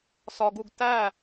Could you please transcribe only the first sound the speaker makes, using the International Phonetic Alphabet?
s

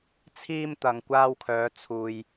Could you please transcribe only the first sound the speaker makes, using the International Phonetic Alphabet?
t͡sʰ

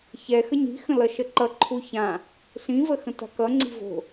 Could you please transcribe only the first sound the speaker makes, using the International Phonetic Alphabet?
ç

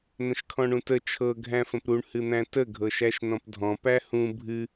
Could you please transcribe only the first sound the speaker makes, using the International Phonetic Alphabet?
n̪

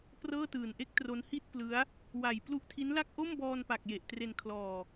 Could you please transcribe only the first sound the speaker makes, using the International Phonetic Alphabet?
p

